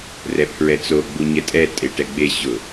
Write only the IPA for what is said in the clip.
rɛpʰɹɛt͡so ɡ͡buɲɛtʼɛ tʼeʈɛɡ͡be ɕʊ

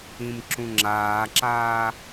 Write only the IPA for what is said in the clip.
ĩmǁũŋ͡ǁaːǁaː

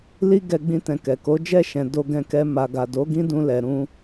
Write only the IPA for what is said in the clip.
li˦ ɡɛ˦ɡ͡bĩ˦tɛ̃˧kɛ˨ ko˨˦d͡ʒɛ˦˨ʃɛ̃˨ do˧ɡɛ̃˧kɛ˧ ma˨ɡa˨do˨˦ ɡĩ˦dũ˧ lɛ˨ɾũ˧

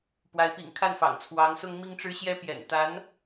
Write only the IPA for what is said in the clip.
pwa˧˥ɪ̯pḭ˨˩ŋkʰa˥˩nfɑ̰˨˩ŋ t͡sʰwɑ˧˥ŋsʊ˥ŋ mi˥ŋʈ͡ʂɻ̩˥ɕjɛ˥ pjɛ̰˨˩nt̪a˧˥n

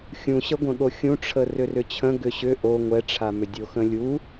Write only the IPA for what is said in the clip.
xʲũɕəɡʷə̃ɠo xʲũʈ͡ʂʰə rʏrʏt͡ɕʰə̃ ɡʏɕʏ ʔo ŋʷɛʈ͡ʂʰamʏ dʲoxə̃lʲu

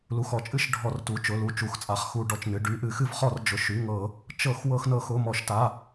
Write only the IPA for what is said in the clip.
lu˩˧˩xɔ˧˩˧t͡ʃʼɨ˧˩˧ʃ ɖʱɔ˧˩˧rtu˩˧˩ t͡ʃʊ˩˧˩lu˩˧˩ t͡ʃu˩˧˩xt͡sʼa˧˩˧χxu˧˩˧ ɖɔ˩˧˩t͡ʃnɨ˩˧˩ ɖy˩˧˩ʔɨ˧˩˧xɨ˧˩˧vχɔ˧˩˧r d͡ʒʊ˩˧˩ʃy˩˧˩ŋɤ˧˩˧ | t͡ʃɤ˧˩˧x wɤ˧˩˧xnɤ˧˩˧xʊ˩˧˩ mɔ˧˩˧ʃta˩˧˩

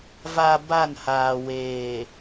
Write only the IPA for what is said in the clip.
va˨ ba˦˨nhaː˨ weː˨

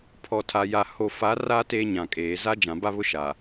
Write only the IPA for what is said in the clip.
pʰɔ˨tʰa˨ja˨ ho˨fa˨˦ra˦ teː˦ɲã˨kʼeː˨ za˦ d͡ʒã˨ba˦βʊ˦ ʃa˨

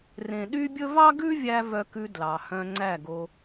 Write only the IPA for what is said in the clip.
rẽ˨ɗy˦bʲɵ˦ vɑ˦ɡʉ˦vʲæ˧ vœ˧kʉ˧ dlɑ˨hœ̃˧ŋ͡ǀæ˦˨ɡo˧

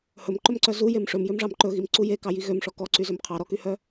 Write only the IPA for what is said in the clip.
hɵmǃɵmǀœ zujem ʂɵmjømʐɑm ǃɵɣimǀu jekɑji ɣømʂɔ kɔǀyzøm qʰɑɾɔkyhœ

